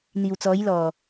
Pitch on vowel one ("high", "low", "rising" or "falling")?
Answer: low